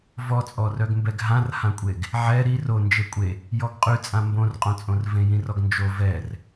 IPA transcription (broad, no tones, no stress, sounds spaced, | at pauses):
v ɔ t͡sʼ ɔ r œ ɡ m b ɛ ɡ ɦ ã r h ã kʷʼ e ɡ | ʕ ɛ ɾ i r o n d͡ʒ e kʷʼ e | j ɔ ɡ qʼ y t͡sʼ ã m b õ r qʼ õ t͡sʼ õ r v ẽ j ĩ r ɔ ɡ n d͡ʒ o v ɛ r